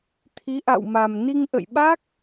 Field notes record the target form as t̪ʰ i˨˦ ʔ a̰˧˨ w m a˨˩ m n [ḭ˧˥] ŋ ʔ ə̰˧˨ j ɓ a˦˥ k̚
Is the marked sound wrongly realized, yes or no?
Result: yes